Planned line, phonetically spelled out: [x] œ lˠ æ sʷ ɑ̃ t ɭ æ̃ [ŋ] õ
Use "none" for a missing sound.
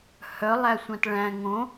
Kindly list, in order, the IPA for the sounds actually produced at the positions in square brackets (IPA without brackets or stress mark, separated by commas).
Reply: h, ŋ